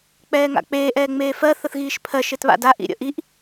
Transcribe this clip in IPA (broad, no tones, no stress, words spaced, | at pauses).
k͡pɛːŋa̰k͡peː ʔɛːŋ͡meːfɜ θəθɣiːʃpʰɜ ʃetβa̰da ʔḭɾʲə̰ʔiʔ